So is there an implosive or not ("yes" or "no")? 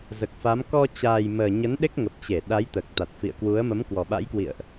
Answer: yes